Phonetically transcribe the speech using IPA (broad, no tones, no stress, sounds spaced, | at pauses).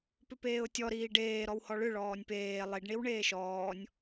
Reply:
p ʏ p eː ʊ̯ tʲ ɔ ɾ iː ɖ eː ɾ ɔ w h ɔ ɭ ʏ ɭ ɔː nʲ p eː lˠ i ɖ ɳ i w ɳ eː ʃ ɔː nʲ